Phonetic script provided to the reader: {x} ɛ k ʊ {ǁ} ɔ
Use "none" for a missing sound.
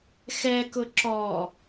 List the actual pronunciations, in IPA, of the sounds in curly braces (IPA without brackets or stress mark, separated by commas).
x, ǁ